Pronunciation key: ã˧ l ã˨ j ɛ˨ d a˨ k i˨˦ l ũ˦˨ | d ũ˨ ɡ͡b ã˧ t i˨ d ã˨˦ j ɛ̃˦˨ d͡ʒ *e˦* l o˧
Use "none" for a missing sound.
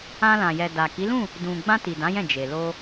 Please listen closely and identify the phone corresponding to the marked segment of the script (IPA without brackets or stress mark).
e˨